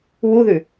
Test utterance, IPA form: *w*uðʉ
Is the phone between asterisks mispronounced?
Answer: no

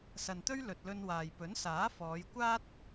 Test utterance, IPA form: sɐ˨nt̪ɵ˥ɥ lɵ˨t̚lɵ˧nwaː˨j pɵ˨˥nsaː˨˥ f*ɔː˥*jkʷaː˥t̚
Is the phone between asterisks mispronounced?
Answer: yes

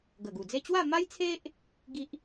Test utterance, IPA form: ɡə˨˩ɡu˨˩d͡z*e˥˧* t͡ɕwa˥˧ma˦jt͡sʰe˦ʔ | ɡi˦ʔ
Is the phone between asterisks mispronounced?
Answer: no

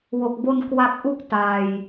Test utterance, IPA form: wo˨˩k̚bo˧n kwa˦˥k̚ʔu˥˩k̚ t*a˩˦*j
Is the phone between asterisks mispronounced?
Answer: yes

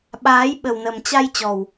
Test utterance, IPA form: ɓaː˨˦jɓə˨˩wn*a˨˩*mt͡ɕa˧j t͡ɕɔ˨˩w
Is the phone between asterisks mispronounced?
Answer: yes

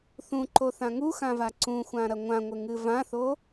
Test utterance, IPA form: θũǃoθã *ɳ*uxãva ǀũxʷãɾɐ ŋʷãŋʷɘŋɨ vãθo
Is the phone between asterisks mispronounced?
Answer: yes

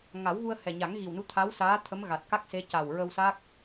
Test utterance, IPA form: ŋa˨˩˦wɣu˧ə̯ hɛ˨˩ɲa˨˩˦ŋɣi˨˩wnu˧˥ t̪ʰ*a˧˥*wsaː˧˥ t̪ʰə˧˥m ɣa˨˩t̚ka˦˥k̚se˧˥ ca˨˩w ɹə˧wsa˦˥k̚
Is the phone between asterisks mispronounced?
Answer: no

